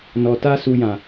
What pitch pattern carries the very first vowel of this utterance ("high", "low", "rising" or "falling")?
low